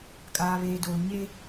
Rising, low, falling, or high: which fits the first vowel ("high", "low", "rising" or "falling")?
low